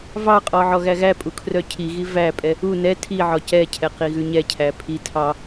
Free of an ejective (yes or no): no